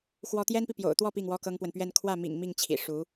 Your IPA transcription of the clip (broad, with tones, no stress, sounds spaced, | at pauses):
x w ɔ˥ t̪ j ɛ˥ n p i˨ p j o̰˨˩ ʊ̯ t̪ w ɔ˥˧ p i˥˩ ŋ w ɔ˥ k ɤ˥ ŋ p w ə˨ n p ɥ ɛ˥˧ n kʰ w ä˥˩ m ḭ˨˩ ŋ m i˥˩ ŋ t͡ɕʰ ḭ˨˩ ʂ u˧˥